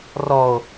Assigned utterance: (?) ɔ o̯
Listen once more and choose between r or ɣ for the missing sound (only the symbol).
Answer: r